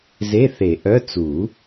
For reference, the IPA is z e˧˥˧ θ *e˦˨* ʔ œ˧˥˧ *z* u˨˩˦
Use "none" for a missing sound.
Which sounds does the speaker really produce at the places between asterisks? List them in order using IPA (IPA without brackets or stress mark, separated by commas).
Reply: e˨˩˦, t͡s